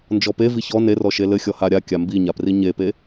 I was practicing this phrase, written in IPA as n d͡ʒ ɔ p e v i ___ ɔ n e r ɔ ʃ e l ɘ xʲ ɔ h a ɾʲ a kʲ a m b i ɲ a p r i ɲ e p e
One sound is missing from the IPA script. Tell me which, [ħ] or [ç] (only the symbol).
ç